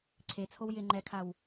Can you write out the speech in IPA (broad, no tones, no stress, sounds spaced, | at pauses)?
ǀʰ e t͡sʰ o w j ɪ ŋ͡ǃ ɛ kʰ a w